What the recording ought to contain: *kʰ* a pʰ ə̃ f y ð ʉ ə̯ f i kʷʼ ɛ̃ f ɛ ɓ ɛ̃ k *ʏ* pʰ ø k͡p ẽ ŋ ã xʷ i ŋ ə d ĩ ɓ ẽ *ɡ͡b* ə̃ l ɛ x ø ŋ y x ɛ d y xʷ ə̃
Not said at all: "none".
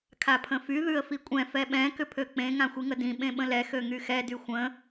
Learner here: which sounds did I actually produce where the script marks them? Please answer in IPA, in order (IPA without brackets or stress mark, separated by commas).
kʰ, ʏ, ɓ